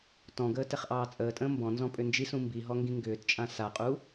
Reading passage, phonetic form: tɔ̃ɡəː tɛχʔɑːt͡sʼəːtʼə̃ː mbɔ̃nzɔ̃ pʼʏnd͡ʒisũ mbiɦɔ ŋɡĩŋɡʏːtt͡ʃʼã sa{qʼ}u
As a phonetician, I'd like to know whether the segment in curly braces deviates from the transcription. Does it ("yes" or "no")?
no